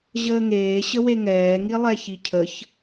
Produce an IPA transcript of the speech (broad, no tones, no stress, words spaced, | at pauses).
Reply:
ʑəːŋeː ɕəweŋɛː ŋilˠɛçicʰəç